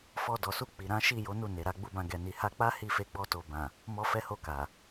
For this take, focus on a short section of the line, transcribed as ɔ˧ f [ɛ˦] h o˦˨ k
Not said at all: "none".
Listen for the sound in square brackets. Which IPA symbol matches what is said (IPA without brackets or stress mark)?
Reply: ɛ˦